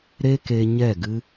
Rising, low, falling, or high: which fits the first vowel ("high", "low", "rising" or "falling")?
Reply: high